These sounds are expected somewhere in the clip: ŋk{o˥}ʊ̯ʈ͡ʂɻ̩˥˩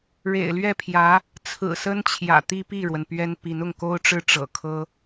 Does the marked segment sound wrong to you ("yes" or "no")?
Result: no